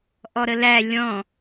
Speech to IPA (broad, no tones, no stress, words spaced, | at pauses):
ʔɔɾəlæ lʲɔ̃